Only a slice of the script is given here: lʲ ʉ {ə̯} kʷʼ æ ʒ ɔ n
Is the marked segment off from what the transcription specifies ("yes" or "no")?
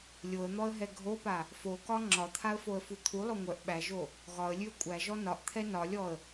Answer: no